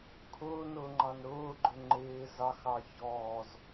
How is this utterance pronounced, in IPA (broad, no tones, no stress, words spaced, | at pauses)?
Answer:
kʰʊːnʊːŋ͡ǃɑn ɾʊːɡ͡ǃʊ ŋ͡ǃɪː zɑxɑ çɔːz